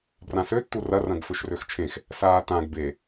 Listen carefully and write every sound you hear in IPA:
b r ã s ø tː u r ɐ r ɐ̃ ɡ f ø ʃ r ø x t͡ʃʰ ẽ x | s aː t ã ɡ b e

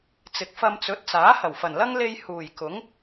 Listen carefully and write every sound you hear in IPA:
t͡s ɪ˨ k̚ f ɐ˧ m t͡s ɵ˨˥ t̚ t͡s aː˨˥ h ɐ˨˩ w f ɐ˨˩ n l ɐ˥ ŋ l e˧ j h uː˨˩ j k ʊ˨˥ ŋ

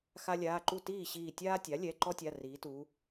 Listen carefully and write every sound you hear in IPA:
x a˦ lʲ aː˩˧˩ ǃ u˥˩ t iː˥˩ ɕ iː˧˩ tʲ aː˦ tʲ a˩˥ lʲ ɛ˩˧˩ ǃ ɔ˦ tʲ a˩˧˩ r iː˩˧ t uː˩˧

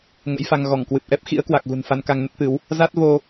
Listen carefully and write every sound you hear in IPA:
ŋ ə̰˧˥ j f a˧ ŋ ɣ ɔ˧˩ ŋ k w ɨ˨˩ p̚ ʔ ɛ˦˥ p̚ x ḭ˧˥ ə̯ k w a˨˩ k̚ ɣ ṳ˨˩ n f a˧ n k a˧ ŋ n ə˦˥ t̚ t̪ ɨ˨˦ w | z a˦˥ t̚ v o˧

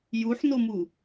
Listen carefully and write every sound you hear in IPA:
j u ħ n o m u

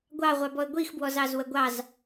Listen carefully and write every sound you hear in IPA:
ɡʷ ɑ ʁʷ ɑ b ɔ ə̯ ɡʷ i x b w ɔ z ɑ z w ə ɡʷ ɑ z

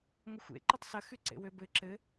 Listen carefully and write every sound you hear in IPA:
ŋʷ ə xʷ ḛ ǃ ə tˤ s ɐ x y ǀ ḛ w ø b ɘ ǁ ɘ

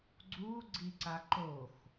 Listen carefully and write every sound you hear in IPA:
ɡ͡ǀ u ɡ͡ǀ i ǀ a ǃ o x

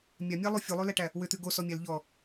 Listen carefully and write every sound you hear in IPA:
mʲ a mʲ æ lˠ u fʲ u lˠ ʉ l æ ʈ æ | w ʏ t̪ ʉ ɡ o s ɔ mʲ æ l ʎ ɔ

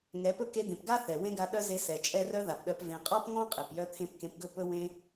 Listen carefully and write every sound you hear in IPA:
ŋ ɛ˨˦ p ɵ˦ k e˧ d̪ ẽ˨ p ɡ a˦ θ ɛ˨ w ẽ˦ ɡ a˧ ɗ œ˦ z e˧ s ɛ˨ t͡ʃʼ ɛ˦ r œ˦ ð a˨ p ɗ œ˧ p v ẽ˨ qʼ ɔ˦ p ŋ ɔ̃˦ qʼ e˨ p j œ˦ t̪ʰ ẽ˦ p k ẽ˧ p ɡ ɵ˦˨ p ɵ˦ w ẽ˦

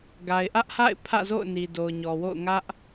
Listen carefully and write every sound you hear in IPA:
ɡ a˨ ɪ̯ ʔ ä˦ ʔ h a̰˦˨ ɪ̯ pʰ ä̰˦˨ z o̰˦˨ ʊ̯ n i˨ d o˨ ʊ̯ ɲ ɔ˨ w o̰˦˨ ʊ̯ ŋ ä˦ ʔ

